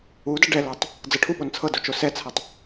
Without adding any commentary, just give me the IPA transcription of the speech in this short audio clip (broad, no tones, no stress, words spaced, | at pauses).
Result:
udʌ ɖɛlɤtˤ | d͡zɤʈʰuɓon t͡sʰɤdo t͡ʃosɛt͡sʰɤtˤ